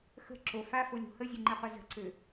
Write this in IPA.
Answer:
x ə̤ ǁ o f a f o lʲ o̤ h ə zʲ ø ŋ͡ǃ ɛ qʷ ə z ə̤ ǀ ø

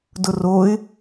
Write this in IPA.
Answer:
d ʊ r o ɪ̯

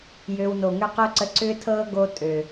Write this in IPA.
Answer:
j ø˧ w n o˨ ŋ ʏ˦ q o˦ ǀ ə˧ ǀ ʏː˦ tʰ ɤː˦ ɡ o˦ tʼ ø˨

